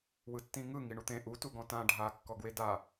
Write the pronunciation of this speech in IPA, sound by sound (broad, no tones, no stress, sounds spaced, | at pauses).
w ɯ tː ĩ ŋ ɯ ŋ i ɳ u t̪ ẽ ʔ u t u ɡ ɔ̃ t ã ɖʱ a kː ɔ ɡ w e d a